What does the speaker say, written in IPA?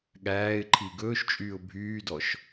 ɠ æː ɪ̯ ǃʰ i ɡ ɵː ʃ t͡ʃʼ yː ʊ̯ bʱ yː d ɔ ʃ

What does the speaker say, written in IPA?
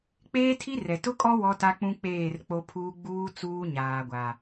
k͡p eː˦ tʰ i˦ r ɛ˨ t ʊ˦ kʼ ɔ˦ w ɔ˦ t a˦ k͡p ũ˦ k͡p eː˦˨ r k͡p o˦ pʰ uː˦ ɡ͡b uː˦ t͡s uː˦ ɲ aː˨ ɡʷ a˨

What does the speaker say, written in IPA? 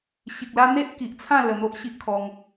ɕ i˨ k̚ l a˦ n̪ e˦ ʔ k i˨ ʔ t͡sʰ ã˥˧ l ə˧ n̪ o˦ ʔ ɕ i˦ ʔ kʰ ɔ˧ ŋ

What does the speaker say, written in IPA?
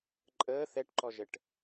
ǃʼ əː θ ɛ ʈ ǃ ɔ ʒ ə ʈ

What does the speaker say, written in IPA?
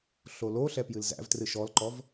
ɬ o l o ɬ ɛ p j ɨ l z æ̰ v t r ɨ ʃ ɔ l ǃ ɔ v

